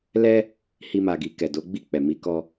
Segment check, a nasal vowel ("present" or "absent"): absent